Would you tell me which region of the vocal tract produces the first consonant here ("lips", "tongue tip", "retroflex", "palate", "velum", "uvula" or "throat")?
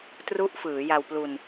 tongue tip